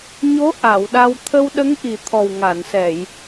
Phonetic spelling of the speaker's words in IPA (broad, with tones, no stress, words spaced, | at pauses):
ɲo˧˥ ʔa˨˩˨wɗa˧w t̪ʰə˧wɗə˧˥ŋʔi˨˩ t̪ʰɔ˨˩wŋa˨˩˨nsɛ˨˩˨j